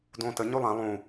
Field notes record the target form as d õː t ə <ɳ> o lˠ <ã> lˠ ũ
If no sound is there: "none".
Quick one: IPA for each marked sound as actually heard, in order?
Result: ɲ, ã

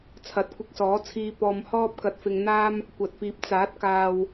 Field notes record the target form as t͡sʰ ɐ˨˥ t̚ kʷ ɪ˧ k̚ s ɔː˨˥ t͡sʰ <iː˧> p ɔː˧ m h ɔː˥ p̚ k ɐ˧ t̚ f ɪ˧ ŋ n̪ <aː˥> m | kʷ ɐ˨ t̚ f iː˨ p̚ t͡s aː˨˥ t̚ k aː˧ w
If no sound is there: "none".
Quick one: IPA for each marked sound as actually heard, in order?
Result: iː˧, aː˥

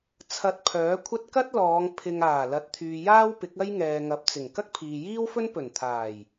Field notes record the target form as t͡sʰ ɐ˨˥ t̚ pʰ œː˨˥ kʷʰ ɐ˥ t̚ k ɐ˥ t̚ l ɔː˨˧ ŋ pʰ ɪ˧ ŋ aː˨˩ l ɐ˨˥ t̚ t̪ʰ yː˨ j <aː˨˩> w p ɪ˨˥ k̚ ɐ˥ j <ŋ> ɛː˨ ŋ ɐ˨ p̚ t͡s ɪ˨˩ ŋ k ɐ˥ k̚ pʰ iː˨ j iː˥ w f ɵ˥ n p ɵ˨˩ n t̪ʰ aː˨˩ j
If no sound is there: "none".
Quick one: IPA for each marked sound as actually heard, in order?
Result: aː˥, ŋ

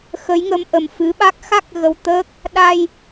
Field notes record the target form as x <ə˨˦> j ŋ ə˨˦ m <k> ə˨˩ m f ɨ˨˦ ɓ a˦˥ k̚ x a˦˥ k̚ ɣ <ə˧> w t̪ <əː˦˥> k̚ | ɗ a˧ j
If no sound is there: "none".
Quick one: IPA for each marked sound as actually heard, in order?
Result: ə˨˦, ʔ, ə˧, əː˦˥

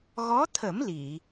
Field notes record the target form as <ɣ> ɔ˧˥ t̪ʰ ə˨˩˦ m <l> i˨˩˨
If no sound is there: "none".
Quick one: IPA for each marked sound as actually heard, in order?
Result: ɣ, l

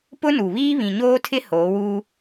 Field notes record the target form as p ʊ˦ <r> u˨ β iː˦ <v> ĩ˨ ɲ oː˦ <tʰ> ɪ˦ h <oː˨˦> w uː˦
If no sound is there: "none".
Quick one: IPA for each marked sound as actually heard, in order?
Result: n, β, tʰ, oː˨˦

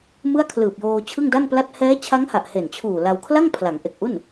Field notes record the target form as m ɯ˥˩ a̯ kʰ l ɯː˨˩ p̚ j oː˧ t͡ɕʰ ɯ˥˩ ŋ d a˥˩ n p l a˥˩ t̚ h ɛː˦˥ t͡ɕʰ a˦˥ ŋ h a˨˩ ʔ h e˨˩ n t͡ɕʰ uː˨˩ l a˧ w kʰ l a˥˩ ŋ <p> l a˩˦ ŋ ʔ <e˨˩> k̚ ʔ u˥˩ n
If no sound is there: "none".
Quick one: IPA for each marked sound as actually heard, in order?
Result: pʰ, e˨˩

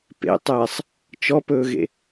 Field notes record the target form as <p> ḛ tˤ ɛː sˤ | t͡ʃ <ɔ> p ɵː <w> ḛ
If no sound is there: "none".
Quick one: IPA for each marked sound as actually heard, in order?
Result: p, ɔ, ɣ

